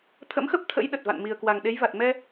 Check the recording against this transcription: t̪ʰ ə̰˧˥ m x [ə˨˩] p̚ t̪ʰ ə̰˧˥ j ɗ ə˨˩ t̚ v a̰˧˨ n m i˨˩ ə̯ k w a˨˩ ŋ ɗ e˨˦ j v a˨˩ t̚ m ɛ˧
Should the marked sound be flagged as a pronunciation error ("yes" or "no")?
yes